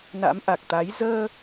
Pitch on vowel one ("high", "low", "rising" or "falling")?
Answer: rising